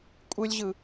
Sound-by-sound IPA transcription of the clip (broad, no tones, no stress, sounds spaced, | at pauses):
kʷʼ ɯ lʲ ʑ ɯ